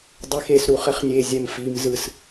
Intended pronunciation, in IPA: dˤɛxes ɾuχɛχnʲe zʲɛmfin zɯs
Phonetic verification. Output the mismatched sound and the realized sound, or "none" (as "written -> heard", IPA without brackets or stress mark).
n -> m